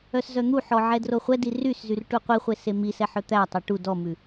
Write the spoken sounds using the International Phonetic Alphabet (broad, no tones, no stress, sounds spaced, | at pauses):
œ s z œ n̪ u ħ ɔ ʕ ɛ d r o χʷ ɛ d i r y s z y r ʈ u qʷ i χʷ e s e m i s ɛ ħ œ t̪ æ tˤ e ʈ u d ɔ m ʉ